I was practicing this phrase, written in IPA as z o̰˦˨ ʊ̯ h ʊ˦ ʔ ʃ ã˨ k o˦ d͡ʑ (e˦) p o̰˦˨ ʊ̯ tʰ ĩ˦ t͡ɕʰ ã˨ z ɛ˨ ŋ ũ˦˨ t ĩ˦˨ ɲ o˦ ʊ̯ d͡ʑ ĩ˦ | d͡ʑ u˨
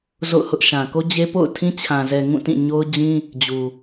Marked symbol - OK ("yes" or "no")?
yes